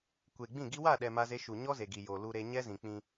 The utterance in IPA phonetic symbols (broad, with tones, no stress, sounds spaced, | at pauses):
kʷ e˨ ɡ͡b ĩ˦˨ ɡ i˦ w a˦˨ ɗ ɛ˨ m a˦ z e˦ ʃ u˨ ɲ ɔ˦ z e˨ ɡ i˨ j o˨ l u˦ ɾ e˦ ɲ ɛ˦ z ĩ˨ k͡p ĩ˦